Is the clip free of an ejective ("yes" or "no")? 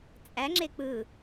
no